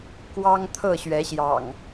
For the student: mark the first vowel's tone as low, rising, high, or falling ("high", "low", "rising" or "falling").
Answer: high